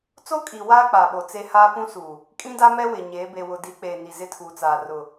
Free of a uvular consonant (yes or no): yes